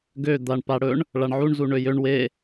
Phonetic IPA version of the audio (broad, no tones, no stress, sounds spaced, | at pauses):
ɡ ø d̪ a ɳ p a ɽ ɵ ɳ | ɭ a ɳ ʕ u ɳ z u ɳ ø j ø ɳ w e